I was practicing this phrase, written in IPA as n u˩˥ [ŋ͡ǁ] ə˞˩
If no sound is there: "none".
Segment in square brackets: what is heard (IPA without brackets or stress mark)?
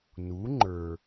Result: ŋ͡ǃ